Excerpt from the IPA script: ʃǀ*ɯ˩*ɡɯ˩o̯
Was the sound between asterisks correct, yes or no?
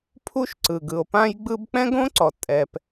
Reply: yes